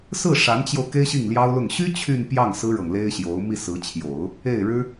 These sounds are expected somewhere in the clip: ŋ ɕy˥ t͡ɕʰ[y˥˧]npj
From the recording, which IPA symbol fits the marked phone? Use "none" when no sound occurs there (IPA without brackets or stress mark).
y˥˧